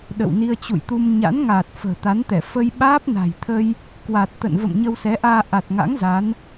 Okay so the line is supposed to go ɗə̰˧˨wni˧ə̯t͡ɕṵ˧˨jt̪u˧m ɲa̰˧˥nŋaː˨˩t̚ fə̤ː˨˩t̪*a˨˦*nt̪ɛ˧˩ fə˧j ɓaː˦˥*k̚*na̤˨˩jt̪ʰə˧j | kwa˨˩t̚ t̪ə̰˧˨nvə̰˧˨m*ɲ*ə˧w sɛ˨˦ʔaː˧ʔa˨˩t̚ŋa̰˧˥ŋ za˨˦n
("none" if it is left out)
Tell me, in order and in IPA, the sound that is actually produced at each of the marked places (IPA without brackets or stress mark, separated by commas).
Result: a˨˦, p̚, ɲ